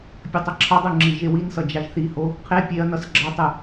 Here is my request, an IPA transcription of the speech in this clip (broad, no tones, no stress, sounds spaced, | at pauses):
pʲ ʌ tˤ ʌ ǁʰ ʌ dˤ u ŋ͡ǁ i ʒ e w i n s ʌ d͡ʒ a ʒ θ i h o | qʰ e pʲ e ɐ̯ n ʌ s ɡ͡ǁ ʌ tˤ ɯ